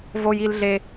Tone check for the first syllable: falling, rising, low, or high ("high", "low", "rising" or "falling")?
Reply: high